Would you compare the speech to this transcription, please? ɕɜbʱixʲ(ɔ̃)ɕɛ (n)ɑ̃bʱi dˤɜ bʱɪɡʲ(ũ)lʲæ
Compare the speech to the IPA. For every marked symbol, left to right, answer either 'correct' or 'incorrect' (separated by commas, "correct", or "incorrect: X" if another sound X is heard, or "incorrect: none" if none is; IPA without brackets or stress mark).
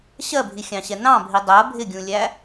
incorrect: ɑ̃, correct, correct